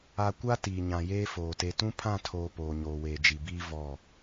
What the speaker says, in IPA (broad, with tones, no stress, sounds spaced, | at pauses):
a˨ kʷ a˦ t iː˨ ɲ ã˨ j eː˦ f oː˨ t e˨ t ũ˦ pʰ ã˦˨ tʰ oː˨ p oː˨ ɲ oː˨ w eː˨ d͡ʒ i˨ b iː˦ v ɔ˦˨